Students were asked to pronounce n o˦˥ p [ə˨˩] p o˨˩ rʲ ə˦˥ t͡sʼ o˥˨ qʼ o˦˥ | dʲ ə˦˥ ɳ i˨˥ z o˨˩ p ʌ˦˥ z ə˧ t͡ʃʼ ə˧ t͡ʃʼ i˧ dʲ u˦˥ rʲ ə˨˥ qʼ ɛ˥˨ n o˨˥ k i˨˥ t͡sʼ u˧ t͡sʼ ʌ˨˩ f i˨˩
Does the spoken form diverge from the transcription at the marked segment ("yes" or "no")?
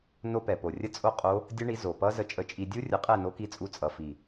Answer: yes